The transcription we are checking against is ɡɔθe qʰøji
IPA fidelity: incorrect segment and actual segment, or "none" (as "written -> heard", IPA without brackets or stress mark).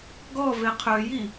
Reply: θ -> v